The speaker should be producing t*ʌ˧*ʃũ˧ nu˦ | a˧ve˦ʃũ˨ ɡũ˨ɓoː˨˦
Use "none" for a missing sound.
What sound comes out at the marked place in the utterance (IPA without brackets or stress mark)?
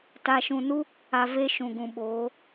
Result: a˧